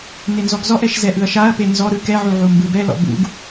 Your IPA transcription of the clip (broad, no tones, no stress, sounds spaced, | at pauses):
n e n z ɔ ɡ z ɔ ʔ ɛ ʃ z ɛ ʔ ɯ ɐ̯ ʃ a ɐ̯ p e n z ɔ ɾ ɯ k ɛ ʕ u ʕ u m b ɯ b ɛ l ɔ̰ b ṵ ɡ